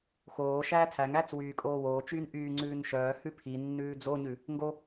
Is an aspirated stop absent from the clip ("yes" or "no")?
no